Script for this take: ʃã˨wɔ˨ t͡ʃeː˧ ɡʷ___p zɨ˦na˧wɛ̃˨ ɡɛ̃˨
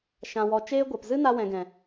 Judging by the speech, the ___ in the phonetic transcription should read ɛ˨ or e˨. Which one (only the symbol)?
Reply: ɛ˨